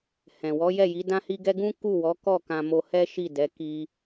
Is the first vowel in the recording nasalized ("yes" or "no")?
yes